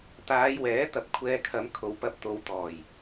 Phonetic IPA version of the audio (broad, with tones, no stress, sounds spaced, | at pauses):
t̪ aː˨˧ j w ɛː˨˥ t̪ ɐ˧ p̚ kʷʰ ɛː˧ kʰ ɐ˨˧ m kʰ o˨ w p ɐ˧ p̚ t̪ o˨ w t̪ ɔː˨˩ j